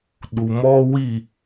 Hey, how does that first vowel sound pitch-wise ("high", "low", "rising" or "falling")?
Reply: low